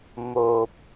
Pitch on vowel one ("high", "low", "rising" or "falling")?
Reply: low